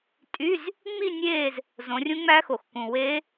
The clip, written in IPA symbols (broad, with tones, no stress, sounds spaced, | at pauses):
tʼ y˧˥˧ z | ŋ͡m i˥˧ nʲ eː˥˧ z | z õ˨˦ rʲ ũ˦˥ ŋ͡m æ˦˥ x o˨˩ x k ũ˨˩ w e˦˥